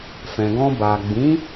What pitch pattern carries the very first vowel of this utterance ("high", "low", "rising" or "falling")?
low